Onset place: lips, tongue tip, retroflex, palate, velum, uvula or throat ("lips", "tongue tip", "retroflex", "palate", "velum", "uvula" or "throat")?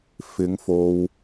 lips